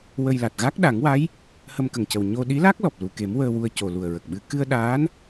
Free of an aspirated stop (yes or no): yes